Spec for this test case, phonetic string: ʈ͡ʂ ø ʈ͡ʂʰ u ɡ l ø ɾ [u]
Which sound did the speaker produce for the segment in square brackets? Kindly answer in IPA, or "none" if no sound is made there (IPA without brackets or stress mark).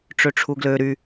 y